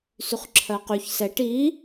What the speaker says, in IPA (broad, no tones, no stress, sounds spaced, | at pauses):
s y χ ǁʰ ɜ q y ç s ɛ ʈ i